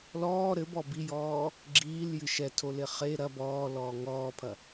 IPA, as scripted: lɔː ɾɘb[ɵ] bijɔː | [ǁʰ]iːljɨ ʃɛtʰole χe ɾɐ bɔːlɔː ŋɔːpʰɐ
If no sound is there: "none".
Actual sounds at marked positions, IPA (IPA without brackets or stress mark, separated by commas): ɔ, ɡ͡ǁ